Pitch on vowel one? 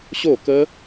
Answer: falling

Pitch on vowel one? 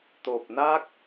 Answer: low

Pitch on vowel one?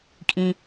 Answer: high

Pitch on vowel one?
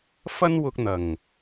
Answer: high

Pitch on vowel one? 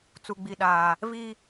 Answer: low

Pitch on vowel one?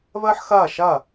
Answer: high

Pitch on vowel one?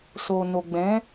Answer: low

